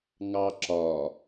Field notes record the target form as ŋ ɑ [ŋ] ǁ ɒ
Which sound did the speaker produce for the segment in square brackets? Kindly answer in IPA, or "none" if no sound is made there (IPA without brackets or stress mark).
none